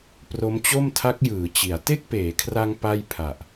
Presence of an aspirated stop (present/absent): present